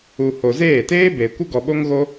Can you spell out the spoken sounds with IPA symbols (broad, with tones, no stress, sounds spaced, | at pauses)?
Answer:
u˨ h o˨ z eː˦˨ t eː˦ b e˨ kʷ ə˦ ɡ ɔ˨ ɓ o˦ ŋ ɣ o˦